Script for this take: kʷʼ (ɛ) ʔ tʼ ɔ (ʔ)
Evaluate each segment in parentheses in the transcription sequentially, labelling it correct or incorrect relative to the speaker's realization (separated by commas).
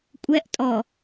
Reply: correct, incorrect